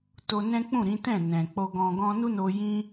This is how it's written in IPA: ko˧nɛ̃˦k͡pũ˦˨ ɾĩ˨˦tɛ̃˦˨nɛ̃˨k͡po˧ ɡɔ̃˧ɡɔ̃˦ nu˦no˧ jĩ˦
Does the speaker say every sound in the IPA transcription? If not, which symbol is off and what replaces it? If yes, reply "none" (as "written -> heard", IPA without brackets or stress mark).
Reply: k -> t